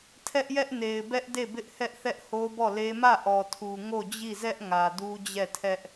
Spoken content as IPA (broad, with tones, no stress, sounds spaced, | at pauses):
tʰ ɛ˦ ʔ j ɛ˦ ʔ n e˨ ɪ̯ b ɛ˦ ʔ d e˦˨ b ɪ˦ ʔ h ɛ˦ ʔ θ ɛ˦ ʔ h o˦ b ɔ˦˨ l e˦ m ä˦˨ ʔ ɔ˨ tʰ u˨ ŋ o˦˨ d͡ʑ i˦˨ z ɛ˦ ʔ ŋ ä˨ d u˦ d͡ʑ ɛ˦˨ tʰ ɛ˦ ʔ